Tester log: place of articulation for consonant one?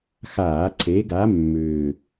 velar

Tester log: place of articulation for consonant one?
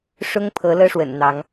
retroflex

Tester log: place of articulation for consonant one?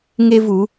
velar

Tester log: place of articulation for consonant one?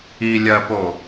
alveolar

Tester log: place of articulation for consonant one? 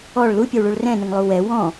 retroflex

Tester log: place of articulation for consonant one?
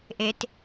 glottal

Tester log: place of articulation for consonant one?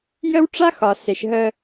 palatal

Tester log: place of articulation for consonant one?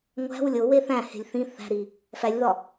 velar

